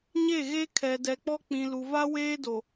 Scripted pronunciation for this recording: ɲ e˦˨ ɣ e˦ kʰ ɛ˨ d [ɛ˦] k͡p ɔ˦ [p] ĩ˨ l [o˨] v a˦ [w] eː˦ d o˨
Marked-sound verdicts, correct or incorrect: incorrect, incorrect, incorrect, correct

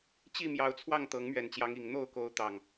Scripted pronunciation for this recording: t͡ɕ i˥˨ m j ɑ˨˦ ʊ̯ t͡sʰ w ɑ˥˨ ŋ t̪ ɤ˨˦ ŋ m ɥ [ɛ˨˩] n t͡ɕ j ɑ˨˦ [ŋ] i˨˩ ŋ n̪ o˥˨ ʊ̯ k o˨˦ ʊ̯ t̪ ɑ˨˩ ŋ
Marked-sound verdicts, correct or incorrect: correct, correct

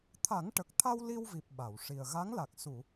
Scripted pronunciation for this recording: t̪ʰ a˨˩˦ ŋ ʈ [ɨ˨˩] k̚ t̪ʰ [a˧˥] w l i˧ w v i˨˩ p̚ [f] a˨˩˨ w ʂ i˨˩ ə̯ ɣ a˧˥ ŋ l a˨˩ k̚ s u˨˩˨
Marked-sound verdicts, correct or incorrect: incorrect, incorrect, incorrect

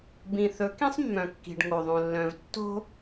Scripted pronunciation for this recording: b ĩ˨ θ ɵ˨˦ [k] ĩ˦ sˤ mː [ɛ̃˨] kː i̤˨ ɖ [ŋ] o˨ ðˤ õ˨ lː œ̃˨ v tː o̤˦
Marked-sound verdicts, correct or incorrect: correct, incorrect, correct

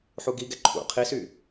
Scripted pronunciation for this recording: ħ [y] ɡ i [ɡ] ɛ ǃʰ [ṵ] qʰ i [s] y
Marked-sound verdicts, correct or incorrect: incorrect, correct, correct, correct

